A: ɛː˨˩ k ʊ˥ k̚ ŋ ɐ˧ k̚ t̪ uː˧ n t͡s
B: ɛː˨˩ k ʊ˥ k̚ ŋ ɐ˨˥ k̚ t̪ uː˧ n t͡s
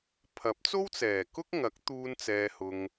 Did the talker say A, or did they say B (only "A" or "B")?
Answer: B